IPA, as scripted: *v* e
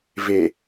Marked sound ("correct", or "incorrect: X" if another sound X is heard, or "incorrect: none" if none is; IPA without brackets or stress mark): correct